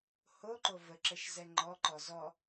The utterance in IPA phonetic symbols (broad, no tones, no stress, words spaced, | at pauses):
hoǃo vəǁəʃ zɛŋ͡ǃɔǃɔ zɔ